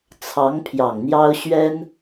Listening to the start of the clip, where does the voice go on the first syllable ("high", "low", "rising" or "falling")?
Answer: rising